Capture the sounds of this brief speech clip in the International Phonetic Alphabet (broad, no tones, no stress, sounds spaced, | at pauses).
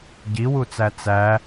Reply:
ɟ i w u t͡s æ t͡s æ